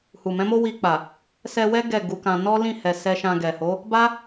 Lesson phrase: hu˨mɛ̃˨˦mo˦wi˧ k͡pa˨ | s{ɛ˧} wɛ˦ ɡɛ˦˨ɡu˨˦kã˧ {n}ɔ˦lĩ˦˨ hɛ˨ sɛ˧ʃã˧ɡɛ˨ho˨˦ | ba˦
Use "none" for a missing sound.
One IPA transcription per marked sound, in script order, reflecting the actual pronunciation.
ɛ˧, n

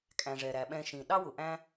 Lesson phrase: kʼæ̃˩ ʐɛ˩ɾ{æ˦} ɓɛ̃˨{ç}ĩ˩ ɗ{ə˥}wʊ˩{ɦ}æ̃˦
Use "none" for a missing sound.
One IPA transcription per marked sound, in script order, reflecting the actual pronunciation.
æ˩, ʃ, ɑ˥, ʔ

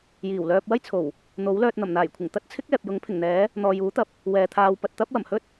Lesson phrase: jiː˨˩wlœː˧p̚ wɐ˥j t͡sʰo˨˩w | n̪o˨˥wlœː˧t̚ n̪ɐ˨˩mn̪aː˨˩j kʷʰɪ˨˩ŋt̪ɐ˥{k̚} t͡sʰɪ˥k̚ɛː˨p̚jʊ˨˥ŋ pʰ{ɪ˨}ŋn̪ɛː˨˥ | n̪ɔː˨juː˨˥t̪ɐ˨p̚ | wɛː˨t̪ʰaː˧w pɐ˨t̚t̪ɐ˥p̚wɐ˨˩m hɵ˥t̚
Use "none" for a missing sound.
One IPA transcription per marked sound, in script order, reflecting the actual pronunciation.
t̚, ɪ˨˩

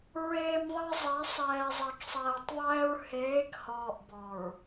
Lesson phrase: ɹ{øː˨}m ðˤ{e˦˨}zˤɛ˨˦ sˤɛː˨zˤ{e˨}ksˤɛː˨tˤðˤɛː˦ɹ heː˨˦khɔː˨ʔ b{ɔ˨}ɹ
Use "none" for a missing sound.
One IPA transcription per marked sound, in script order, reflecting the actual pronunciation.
eː˨, e˦, e˨, ɔ˨

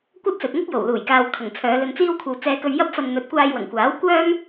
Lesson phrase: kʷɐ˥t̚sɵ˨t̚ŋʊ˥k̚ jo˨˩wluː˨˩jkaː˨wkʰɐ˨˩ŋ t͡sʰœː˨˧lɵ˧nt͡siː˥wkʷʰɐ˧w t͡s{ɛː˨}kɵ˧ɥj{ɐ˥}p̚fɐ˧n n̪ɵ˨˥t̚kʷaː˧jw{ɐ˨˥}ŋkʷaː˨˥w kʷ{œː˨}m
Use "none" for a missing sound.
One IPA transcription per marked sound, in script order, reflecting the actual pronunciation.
ɛː˧, ɐ˥, ɐ˨˩, œː˥

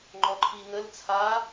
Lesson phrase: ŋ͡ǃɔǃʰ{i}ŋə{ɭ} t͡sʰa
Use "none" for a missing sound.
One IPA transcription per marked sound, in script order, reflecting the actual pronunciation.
i, l

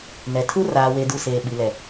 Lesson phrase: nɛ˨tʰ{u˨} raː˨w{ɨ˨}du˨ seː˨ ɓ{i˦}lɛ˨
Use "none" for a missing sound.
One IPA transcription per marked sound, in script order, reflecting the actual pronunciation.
u˦, e˨, i˨

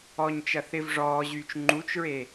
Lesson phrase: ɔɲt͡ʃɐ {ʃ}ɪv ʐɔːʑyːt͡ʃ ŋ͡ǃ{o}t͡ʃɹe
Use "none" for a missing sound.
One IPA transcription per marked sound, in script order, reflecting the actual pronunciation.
θ, u

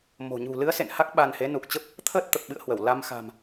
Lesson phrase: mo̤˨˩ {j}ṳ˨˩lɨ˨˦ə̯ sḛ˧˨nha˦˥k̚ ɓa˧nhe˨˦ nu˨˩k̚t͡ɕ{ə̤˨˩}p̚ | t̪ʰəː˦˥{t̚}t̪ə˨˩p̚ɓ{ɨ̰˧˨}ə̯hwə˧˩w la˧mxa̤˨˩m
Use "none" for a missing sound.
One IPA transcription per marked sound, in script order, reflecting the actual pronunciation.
ɲ, ə˦˥, t̚, ɨ̰˧˨

